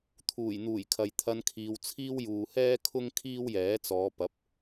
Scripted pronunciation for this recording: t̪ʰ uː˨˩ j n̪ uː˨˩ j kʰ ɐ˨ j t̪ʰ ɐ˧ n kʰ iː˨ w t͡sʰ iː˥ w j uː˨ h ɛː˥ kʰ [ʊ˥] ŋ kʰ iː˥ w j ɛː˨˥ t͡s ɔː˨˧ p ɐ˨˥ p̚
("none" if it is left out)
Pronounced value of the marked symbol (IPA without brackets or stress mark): ʊ˥